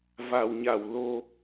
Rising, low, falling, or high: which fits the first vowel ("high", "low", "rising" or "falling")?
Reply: low